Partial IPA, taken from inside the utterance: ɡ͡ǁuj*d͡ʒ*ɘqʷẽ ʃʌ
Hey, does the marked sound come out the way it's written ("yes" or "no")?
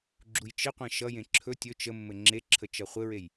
no